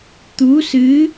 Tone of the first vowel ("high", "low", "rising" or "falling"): rising